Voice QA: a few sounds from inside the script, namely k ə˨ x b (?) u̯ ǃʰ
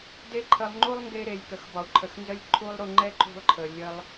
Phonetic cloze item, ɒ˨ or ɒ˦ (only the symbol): ɒ˨